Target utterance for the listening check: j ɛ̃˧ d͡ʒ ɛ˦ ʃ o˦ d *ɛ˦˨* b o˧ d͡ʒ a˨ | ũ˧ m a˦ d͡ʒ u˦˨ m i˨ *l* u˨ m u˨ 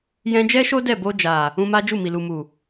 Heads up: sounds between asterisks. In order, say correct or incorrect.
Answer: correct, correct

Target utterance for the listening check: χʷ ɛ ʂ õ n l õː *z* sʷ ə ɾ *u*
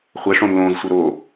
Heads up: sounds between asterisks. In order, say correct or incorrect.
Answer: correct, incorrect: o

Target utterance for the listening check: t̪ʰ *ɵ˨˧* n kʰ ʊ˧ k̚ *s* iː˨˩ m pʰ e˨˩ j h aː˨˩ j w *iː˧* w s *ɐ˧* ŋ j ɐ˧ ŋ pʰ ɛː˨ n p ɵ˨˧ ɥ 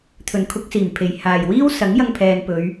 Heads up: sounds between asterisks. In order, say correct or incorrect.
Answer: incorrect: ɵ˨˩, correct, incorrect: iː˥, incorrect: ɐ˨˥

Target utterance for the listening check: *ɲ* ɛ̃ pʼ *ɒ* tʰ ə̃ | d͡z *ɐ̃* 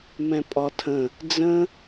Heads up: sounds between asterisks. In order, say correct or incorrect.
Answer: incorrect: m, correct, incorrect: ə̃

